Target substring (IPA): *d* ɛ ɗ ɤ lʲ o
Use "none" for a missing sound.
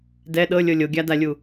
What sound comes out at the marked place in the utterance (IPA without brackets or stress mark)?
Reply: d